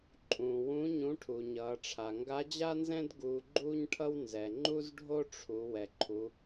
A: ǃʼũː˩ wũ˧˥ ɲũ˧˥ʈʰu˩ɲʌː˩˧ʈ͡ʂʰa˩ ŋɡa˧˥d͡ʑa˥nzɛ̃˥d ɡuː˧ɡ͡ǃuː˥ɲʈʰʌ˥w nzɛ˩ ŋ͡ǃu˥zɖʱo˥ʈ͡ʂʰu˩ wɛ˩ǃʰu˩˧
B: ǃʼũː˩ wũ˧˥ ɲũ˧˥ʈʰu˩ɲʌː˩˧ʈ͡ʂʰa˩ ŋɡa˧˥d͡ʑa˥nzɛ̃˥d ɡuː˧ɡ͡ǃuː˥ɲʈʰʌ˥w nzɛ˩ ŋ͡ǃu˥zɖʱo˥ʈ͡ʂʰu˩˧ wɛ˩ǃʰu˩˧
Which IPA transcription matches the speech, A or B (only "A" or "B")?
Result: B